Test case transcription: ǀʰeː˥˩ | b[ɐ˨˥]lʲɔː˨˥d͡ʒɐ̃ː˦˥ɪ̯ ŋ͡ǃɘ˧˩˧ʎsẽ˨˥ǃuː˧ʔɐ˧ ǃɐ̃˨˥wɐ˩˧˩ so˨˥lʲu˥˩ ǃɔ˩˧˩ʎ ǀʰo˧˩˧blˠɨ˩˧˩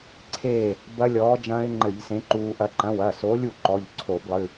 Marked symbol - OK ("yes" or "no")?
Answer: no